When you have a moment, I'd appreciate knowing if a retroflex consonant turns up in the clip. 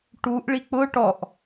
yes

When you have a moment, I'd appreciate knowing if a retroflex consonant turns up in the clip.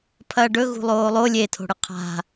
yes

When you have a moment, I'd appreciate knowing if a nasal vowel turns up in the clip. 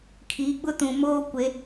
yes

